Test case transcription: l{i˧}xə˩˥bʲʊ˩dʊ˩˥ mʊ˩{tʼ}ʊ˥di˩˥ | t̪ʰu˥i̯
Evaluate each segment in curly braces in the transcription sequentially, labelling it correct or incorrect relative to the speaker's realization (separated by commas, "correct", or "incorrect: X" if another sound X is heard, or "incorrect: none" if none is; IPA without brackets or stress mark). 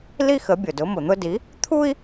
incorrect: i˥, incorrect: n̪